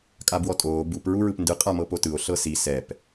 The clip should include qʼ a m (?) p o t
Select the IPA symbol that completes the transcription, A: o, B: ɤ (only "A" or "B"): B